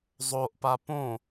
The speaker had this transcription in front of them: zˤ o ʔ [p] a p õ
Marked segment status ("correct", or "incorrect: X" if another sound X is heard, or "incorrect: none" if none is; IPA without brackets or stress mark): correct